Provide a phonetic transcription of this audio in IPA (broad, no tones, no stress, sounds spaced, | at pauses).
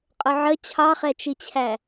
qʼ ʊ ʕ ə t͡ɕʰ ɑ χ ɛ t͡ʃ i t͡ɕʰ æ